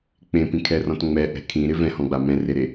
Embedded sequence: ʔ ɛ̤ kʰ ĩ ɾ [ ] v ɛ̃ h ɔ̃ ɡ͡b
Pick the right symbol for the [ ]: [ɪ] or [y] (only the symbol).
ɪ